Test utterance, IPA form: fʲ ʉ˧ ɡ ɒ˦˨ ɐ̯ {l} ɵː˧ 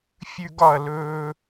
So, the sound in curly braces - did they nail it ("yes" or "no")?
yes